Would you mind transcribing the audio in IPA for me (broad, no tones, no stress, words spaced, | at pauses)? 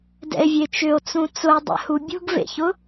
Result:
dɛ̰e̯vʲet͡ʃʏo̯t͡sũ t͡sʊe̯dˤɛ̰hu bʲṳɡvḛçʊ